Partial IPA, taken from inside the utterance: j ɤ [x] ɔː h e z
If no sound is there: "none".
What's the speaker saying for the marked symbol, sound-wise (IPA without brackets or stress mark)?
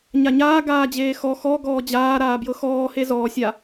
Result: x